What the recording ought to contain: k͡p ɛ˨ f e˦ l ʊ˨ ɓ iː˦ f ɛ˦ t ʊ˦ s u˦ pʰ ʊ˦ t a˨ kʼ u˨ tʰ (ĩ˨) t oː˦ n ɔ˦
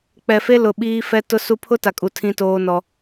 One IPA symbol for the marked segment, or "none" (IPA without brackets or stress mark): ĩ˦